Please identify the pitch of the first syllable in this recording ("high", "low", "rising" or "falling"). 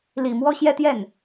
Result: low